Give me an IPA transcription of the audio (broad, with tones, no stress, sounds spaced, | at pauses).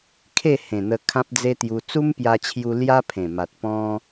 kʰ e˥˧ h ẽ˨˩ n̪ ə˧ kʰ ã˦ p̚ d͡z e˦ t̪ j u˧ t͡s u˦ m p j a˧ t͡ɕʰ j u˧ l j a˦ pʰ ẽ˨˩ m a˨ t̚ p ɔ̃˦